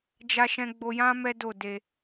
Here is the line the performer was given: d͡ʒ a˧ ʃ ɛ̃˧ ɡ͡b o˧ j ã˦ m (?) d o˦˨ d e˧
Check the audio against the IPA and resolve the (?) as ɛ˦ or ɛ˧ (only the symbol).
ɛ˦